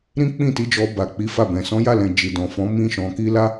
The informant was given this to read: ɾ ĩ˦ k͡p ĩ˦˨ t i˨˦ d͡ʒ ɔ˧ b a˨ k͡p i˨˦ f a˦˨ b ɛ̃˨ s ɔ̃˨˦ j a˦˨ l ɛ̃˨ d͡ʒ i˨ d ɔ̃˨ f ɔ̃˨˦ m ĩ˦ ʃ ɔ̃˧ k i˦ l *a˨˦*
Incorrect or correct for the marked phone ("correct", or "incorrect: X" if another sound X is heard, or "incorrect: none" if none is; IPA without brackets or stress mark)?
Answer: incorrect: a˦